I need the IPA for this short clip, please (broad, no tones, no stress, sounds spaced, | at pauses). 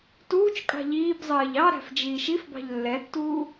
t uː t͡ʃ kʼ ɑ̤ ʎ iː b zˤ ɜː ʎ ɑ ɾ æ̤ f d͡ʒ iː ʃ i f b ɑ̤ ʎ lː ɛ tː uː